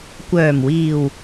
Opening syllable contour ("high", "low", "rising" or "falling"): low